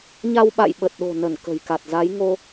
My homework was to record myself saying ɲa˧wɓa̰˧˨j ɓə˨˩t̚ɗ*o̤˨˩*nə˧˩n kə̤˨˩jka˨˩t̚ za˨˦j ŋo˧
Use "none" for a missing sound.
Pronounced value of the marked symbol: o̤˨˩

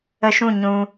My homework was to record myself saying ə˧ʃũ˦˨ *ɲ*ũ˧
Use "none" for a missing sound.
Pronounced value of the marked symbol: ɲ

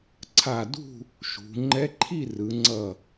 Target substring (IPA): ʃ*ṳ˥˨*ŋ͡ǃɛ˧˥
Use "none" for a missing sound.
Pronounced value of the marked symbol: ṳ˩˧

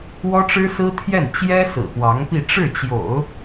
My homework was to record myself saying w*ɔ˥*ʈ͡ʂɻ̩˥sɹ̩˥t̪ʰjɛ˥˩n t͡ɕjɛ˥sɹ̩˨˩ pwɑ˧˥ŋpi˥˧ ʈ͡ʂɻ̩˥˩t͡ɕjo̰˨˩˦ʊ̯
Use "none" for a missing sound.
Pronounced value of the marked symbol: ɔ˥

